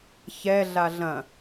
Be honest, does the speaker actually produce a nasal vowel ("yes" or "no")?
yes